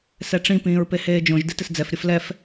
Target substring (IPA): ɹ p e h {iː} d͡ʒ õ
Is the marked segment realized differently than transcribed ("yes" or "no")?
yes